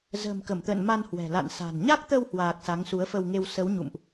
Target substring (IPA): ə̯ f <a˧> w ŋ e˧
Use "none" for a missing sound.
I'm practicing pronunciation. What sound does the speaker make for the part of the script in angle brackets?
ə˧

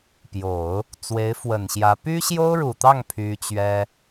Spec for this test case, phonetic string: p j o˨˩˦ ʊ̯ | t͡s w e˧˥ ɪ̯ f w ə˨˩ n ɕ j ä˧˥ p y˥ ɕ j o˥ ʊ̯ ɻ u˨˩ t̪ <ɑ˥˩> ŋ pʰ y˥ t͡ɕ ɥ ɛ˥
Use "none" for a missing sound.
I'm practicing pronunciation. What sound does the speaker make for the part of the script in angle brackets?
ɑ˥˩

